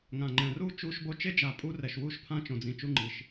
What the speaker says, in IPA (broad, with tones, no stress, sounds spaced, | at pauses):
ŋ ã˨ ŋ͡ǃ ɛ̃˨ r uː˦ t͡ʃ uː˦ ʃ b o˦ t͡ʃ e˦ d͡ʒ a˨ pʼ u˦ r ɛ˨ ʃ w uː˦ ʃ pʰ ã˦ t͡ʃ õ˨ d͡z ĩ˨ t͡ʃ u˦ ŋ͡ǃ i˨ ʃ